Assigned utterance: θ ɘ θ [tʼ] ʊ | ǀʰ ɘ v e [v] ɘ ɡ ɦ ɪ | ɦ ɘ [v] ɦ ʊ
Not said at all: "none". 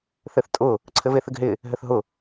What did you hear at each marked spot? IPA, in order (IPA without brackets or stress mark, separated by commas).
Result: tʼ, θ, θ